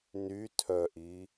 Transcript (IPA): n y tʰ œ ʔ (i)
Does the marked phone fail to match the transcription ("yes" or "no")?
no